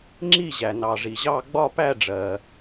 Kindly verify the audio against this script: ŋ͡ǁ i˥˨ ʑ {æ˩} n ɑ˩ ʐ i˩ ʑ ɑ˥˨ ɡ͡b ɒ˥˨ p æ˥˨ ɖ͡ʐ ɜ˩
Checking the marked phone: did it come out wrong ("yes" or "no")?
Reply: no